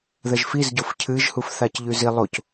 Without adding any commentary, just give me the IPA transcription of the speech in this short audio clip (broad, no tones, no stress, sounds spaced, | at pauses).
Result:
ð ɐ ʒ f i z ɟ o f cʰ ɨ ʒ h u f θ a c ʎ ʉ z i lˠ o c